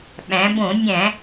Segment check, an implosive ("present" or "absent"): present